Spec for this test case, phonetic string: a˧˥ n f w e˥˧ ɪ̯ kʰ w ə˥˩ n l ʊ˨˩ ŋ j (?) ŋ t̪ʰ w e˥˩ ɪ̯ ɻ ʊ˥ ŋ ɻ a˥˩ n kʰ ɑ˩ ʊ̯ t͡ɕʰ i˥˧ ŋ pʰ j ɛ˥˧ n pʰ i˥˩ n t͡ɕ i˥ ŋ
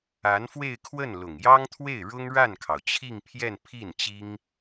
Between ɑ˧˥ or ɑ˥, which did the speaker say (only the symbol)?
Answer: ɑ˥